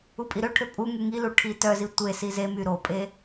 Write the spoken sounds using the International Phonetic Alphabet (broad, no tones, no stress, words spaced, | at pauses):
upʼiɾøʈʰø pʼu ŋyŋilu ʈʰitœzi tʷe sizemy ɾopʼe